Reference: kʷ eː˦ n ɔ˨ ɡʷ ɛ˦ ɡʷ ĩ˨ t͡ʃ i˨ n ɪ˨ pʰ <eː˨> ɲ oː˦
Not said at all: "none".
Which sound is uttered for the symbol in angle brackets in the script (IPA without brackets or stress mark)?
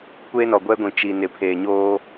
eː˨